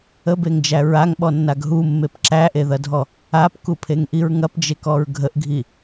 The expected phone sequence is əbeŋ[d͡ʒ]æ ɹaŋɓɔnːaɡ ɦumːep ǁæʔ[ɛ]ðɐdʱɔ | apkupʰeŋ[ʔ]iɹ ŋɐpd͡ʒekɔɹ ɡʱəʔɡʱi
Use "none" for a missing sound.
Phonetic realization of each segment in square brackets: d͡ʒ, e, ʔ

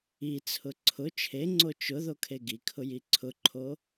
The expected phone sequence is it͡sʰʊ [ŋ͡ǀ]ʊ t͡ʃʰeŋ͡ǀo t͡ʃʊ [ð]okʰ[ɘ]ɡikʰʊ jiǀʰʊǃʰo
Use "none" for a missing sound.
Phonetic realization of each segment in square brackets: ǀʰ, ð, e

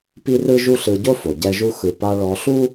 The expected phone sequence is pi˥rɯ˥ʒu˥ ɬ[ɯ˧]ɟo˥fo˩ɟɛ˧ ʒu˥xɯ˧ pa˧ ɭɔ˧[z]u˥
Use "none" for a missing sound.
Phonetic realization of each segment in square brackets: ɯ˧, ɬ

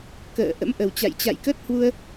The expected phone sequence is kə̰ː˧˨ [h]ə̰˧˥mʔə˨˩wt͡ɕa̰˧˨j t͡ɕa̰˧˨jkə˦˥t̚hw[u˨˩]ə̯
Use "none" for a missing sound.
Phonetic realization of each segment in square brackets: ʔ, u˧

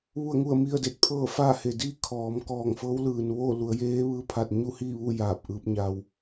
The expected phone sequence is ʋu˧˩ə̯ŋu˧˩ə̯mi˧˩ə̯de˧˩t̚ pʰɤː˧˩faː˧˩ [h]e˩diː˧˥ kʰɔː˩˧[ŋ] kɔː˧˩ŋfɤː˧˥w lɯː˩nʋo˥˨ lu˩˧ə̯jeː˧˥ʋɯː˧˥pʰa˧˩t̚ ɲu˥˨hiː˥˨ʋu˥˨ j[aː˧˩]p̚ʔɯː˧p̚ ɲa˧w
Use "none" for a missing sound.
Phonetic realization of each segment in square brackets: h, m, aː˧˩

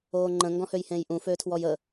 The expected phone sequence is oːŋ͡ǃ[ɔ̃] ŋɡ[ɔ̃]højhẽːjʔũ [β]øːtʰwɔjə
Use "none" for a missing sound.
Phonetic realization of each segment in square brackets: ə̃, ɔ̃, f

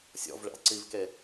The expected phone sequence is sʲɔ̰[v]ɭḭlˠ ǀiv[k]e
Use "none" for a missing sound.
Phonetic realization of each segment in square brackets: v, k

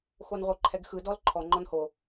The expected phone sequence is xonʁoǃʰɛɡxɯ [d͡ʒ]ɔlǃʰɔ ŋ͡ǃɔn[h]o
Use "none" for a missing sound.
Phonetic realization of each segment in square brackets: d, h

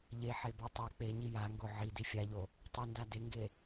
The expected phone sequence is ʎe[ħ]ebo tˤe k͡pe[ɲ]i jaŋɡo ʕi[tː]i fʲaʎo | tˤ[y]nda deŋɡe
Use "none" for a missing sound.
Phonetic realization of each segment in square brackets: ħ, ɲ, d, u

